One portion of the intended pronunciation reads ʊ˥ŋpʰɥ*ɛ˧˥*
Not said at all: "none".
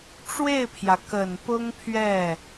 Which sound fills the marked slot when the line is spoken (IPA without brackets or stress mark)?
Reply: ɛ˥˩